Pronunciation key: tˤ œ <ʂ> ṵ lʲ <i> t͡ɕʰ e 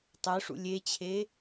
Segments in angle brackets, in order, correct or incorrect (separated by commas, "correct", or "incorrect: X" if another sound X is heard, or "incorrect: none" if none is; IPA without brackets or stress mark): correct, incorrect: e